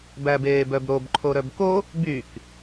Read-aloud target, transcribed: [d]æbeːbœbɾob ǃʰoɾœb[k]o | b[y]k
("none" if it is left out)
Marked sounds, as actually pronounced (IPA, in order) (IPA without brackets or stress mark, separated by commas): b, k, y